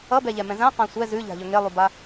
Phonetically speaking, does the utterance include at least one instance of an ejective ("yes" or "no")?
no